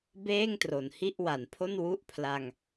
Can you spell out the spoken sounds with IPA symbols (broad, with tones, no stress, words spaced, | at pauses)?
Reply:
beː˥˩ŋ tro˨˩nhi˥˩ʔwa˩˦npʰo˥˩n wu˦˥ʔpʰla˧ŋ